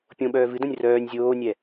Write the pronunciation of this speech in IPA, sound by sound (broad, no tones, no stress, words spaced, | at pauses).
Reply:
pʲõɓœː vɨdõnʲ rœːnʲ zʲoːnʲɛ